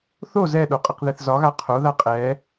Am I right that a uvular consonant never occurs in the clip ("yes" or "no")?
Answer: no